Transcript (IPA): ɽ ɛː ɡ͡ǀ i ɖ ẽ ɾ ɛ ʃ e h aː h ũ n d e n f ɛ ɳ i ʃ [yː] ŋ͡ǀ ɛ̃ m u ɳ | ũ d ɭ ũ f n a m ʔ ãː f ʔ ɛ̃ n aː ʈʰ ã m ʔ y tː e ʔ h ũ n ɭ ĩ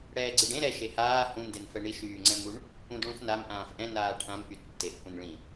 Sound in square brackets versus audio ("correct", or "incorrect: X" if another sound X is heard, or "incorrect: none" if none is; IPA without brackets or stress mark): correct